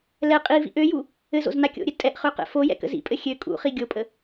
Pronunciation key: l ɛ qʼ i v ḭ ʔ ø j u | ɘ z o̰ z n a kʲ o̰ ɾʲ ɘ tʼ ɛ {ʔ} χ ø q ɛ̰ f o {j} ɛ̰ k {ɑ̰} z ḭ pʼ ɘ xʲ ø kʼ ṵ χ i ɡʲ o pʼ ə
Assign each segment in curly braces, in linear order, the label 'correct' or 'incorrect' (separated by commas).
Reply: correct, correct, incorrect